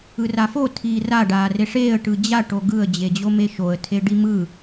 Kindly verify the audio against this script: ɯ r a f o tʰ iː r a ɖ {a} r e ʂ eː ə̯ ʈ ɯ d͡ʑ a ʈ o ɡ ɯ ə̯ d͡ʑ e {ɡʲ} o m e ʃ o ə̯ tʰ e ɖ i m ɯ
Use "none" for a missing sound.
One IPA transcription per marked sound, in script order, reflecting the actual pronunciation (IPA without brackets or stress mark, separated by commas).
aː, d͡ʑ